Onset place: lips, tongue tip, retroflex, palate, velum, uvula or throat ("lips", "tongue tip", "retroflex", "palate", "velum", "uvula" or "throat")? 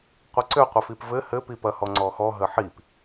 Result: uvula